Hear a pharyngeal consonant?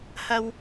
no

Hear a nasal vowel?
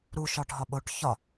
no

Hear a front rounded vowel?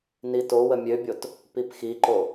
yes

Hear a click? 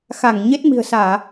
no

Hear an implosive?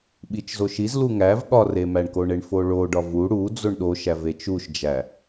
yes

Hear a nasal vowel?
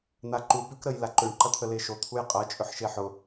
no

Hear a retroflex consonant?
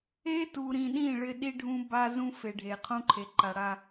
yes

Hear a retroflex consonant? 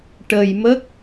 yes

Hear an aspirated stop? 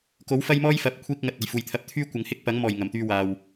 yes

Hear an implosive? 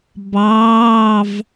no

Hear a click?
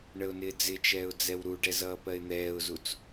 no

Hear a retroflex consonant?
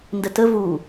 no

